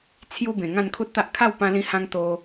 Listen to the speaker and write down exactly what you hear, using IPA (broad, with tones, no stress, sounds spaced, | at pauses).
t͡sʰ j u˦ b ẽ˨˩ ŋ ã˥˧ n kʰ u˦ t̚ t̪ a˦ ʔ kʰ a˥˧ w p ã˧ l ĩ˧ h ã˧ ŋ t̪ o˧